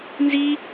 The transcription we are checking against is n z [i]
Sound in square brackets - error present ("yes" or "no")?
no